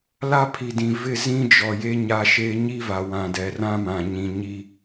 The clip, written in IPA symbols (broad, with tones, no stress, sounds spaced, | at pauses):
l a˦ pʰ i˨ d ĩ˨ v ɪ˦˨ z ĩ˦ d͡ʒ ɔ˨ j e˦ ɲ a˦ ʃ e˦ ɲ i˦ v a˨ w ã˨ d ɛ˨ r ã˦ m ã˨ ɲ ĩ˨ ɲ i˦